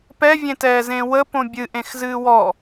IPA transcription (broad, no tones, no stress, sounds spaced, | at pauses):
p ɛ vʲ ẽ t ɛː z ẽ w ə p õ bʲ ɨ ʔ ẽ x z ɨː w ɔ